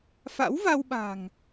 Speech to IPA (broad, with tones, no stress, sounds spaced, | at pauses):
f a̰˧˥ w v a˧ w ɓ a̤˨˩ ŋ